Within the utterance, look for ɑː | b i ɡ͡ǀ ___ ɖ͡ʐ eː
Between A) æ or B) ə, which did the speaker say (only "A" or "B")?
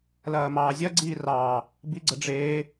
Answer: B